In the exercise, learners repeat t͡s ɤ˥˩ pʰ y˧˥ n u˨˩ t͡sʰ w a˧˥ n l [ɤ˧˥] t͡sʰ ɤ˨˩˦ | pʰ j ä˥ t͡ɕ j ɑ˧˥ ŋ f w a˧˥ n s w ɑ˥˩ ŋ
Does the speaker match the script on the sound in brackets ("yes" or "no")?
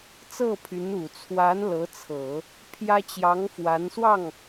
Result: yes